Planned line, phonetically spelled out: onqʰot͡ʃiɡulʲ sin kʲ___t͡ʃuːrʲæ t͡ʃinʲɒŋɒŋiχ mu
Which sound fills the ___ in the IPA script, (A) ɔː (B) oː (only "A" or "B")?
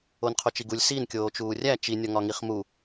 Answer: B